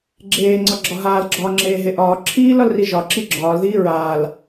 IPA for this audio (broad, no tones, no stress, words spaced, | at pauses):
ɡ͡ǁeːŋ͡ǀɒ ɡ͡ǁɒɦaːlɡ͡ǁɒː ŋ͡ǁeːɦeʔɒː ǁʰiːlɒlri ʒɒǁi ɡ͡ǁɒːlðiː ɹaːl